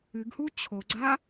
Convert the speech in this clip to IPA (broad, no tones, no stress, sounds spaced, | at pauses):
ɨ ɡ h u t͡ɕʰ o ɡ͡ǀ a